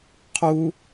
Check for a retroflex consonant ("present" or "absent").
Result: absent